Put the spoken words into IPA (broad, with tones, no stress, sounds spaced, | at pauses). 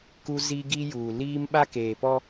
k u˦ z i˦ ɡ i˦ j uː˨ l iː˦ m ɓ a˦ k eː˨ p ɔ˦